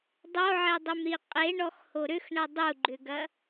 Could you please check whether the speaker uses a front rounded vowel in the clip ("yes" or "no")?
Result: yes